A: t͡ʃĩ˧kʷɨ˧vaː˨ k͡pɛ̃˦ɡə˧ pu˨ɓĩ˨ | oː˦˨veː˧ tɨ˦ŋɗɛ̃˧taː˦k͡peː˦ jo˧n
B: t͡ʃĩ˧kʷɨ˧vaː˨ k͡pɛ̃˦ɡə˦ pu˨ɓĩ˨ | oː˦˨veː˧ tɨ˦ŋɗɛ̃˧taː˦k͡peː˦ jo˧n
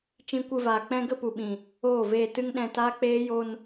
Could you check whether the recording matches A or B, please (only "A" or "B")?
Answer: B